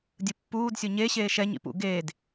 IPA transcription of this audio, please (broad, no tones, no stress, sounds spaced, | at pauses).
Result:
dʲ ɯ pː uː d sʲ o ɲ e ɕ eː ʃ ɛ ɲ ḭ p ṵ ɡ eː d